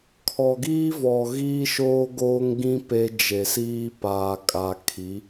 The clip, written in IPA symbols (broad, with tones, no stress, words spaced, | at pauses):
kʰɔ˨ɡiː˦vɔ˨ ɣiː˦ʃoː˦ɡoː˦ŋɡĩ˦ pe˦ d͡ʒe˨siː˦ paː˨kʼa˨kʰi˨˦